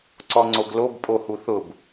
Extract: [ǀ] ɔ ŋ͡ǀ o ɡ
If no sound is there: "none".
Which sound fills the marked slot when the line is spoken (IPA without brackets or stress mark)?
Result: ǀ